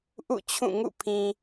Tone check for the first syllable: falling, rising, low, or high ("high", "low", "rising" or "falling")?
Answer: falling